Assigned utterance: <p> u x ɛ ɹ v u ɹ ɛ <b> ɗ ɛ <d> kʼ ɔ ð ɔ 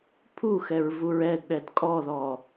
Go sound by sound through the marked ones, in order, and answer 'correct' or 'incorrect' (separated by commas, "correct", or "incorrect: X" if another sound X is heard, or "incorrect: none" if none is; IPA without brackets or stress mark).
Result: incorrect: pʰ, incorrect: d, correct